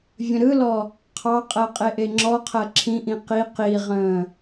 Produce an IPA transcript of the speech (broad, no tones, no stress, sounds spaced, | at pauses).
vʲ ə̃ ɾ ɯ l ɔ | qʰ ɑ qʼ ɜ qʼ e ʔ e ŋ͡ǁ ɔ qʰ ɜ ǁʰ ĩ ʔ ĩ q i q i ʁ ə̃ː